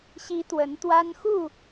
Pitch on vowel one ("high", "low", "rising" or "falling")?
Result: rising